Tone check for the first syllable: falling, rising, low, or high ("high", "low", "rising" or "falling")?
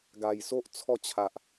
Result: low